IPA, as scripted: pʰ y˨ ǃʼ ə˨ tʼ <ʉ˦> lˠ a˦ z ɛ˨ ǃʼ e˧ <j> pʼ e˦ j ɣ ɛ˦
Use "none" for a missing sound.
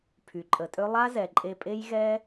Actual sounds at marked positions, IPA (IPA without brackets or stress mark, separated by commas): ø˦, none